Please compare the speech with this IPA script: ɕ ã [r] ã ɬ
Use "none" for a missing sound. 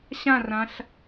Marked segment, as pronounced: r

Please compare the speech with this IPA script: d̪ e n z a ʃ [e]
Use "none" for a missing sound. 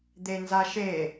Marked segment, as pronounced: e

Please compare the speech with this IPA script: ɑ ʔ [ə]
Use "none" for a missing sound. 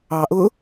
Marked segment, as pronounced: ʊ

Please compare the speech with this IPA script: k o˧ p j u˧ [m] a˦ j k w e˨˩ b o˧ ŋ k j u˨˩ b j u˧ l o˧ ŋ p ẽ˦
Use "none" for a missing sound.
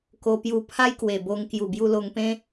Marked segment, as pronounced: pʰ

